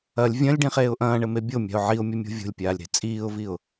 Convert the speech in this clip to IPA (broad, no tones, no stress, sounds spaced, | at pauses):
ɐ lʲ vʲ ɐ̃ lʲ ɖ ĩ χ eː ʊ̯ ʔ ɐ̃ː ɳ ɘ m e bʲ o mʲ a̤ ʊ̯ ʕ i ʊ̯ mʲ ɐ mʲ o̤ vʲ o̤ lʲ pʲ aː lʲ ɾ e̤ t͡sʼ iː ʊ̯ v i ʊ̯